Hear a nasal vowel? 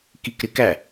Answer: no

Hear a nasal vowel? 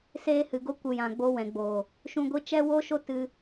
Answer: yes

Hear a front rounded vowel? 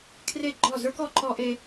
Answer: no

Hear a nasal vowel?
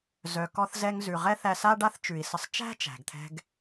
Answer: no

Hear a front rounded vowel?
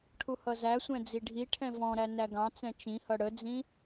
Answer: no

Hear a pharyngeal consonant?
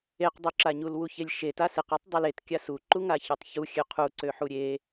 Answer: yes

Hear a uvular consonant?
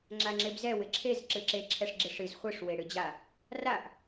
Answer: yes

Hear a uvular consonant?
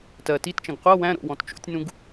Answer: yes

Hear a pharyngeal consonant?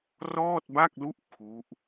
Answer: no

